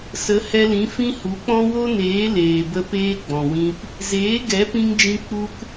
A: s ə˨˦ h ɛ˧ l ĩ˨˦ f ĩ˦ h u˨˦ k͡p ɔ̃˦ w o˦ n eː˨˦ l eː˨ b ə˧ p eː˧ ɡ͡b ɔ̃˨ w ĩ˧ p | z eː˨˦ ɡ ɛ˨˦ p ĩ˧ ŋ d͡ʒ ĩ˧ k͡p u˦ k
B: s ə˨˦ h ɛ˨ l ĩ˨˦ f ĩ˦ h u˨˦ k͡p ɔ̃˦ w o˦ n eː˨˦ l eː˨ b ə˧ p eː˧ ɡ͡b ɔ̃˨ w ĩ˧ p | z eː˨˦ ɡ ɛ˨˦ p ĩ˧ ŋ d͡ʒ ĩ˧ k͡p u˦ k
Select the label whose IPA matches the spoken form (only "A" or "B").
A